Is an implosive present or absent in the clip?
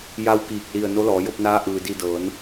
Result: absent